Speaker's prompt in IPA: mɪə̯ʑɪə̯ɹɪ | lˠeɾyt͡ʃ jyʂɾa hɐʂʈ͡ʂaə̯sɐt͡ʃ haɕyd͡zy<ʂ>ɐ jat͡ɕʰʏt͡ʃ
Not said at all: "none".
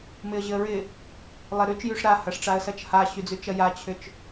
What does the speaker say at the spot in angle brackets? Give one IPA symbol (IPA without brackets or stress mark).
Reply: t͡ʃ